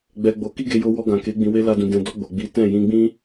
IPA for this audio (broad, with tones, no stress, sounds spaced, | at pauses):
ɡ͡b ɛ˧ ɡ͡b o˧ k i˦ ɡ e˧ j o˧ w ɔ˧ ɡ ã˨ k e˨˦ ɡ͡b ĩ˧ w e˦ l a˧ d ũ˨ d ɛ̃˨ d ɔ˧ ɡ͡b o˨ ɡ͡b i˨˦ t ɛ̃˦˨ j ĩ˧ ɡ͡b ĩ˦